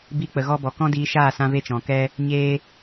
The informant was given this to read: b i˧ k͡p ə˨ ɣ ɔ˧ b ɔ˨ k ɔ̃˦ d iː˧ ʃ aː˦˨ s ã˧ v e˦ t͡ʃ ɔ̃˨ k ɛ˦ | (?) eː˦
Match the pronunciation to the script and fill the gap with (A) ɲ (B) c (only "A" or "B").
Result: A